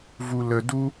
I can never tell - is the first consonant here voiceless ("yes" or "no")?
no